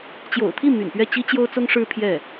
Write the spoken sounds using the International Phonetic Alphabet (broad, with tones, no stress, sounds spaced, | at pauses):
t͡ɕ j o̰˨˩ ʊ̯ t̪ʰ i˥˩ m y̰˨˩ n p ɥ ɛ˥˩ t͡ɕ i˥ t͡ɕ j o˥ ʊ̯ t͡s ʊ˥ ŋ ʂ ɻ̩˥ pʰ j ɛ˥˩